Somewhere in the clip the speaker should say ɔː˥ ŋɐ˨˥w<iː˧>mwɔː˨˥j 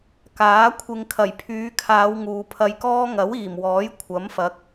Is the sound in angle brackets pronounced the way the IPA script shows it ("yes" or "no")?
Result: no